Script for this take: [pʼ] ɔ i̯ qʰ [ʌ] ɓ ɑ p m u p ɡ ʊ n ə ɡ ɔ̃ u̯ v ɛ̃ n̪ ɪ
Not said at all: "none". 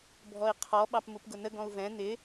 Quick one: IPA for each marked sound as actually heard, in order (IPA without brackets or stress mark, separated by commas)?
bʱ, ɔ